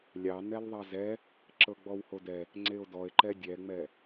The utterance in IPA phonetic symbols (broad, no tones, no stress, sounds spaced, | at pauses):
lʲ ɑ n ɛ l ðˤ ɑ z ɛ | ǁ ɤ ɡ͡b ɔ w h o d ɛ | ŋ͡ǀ e o̯ d ɔ e̯ ǃ ɛ dʲ ɛ ŋ͡m ɛ